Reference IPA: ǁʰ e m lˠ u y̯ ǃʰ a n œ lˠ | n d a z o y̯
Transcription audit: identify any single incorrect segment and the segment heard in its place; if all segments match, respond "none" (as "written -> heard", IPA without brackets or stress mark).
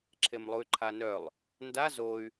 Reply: none